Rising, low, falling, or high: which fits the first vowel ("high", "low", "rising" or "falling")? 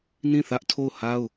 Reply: falling